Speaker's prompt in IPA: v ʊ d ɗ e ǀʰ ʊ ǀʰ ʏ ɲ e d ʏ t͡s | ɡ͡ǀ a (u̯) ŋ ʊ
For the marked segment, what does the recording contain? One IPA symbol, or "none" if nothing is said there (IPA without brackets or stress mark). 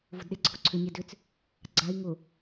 i̯